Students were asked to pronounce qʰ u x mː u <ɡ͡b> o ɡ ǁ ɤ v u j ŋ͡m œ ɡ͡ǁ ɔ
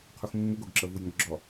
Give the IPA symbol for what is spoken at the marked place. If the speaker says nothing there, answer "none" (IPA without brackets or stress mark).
ɡ